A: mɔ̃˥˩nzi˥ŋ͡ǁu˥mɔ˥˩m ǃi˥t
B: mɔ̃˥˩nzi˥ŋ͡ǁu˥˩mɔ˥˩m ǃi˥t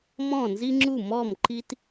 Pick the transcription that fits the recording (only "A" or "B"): B